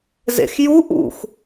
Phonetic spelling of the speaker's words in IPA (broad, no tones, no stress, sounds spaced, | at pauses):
z ḛ x j u ʔ ṵ x